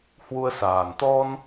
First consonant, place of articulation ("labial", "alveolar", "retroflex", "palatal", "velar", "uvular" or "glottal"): glottal